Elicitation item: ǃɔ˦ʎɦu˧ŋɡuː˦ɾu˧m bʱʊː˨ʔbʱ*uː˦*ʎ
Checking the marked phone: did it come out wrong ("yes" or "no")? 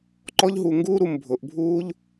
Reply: no